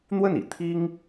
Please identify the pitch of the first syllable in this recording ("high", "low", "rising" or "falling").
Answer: falling